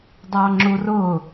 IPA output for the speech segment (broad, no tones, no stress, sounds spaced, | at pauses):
dˤ ɑ ŋ͡ǁ u r ʊ